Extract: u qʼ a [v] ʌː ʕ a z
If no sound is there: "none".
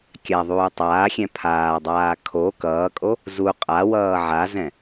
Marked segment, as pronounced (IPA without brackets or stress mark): w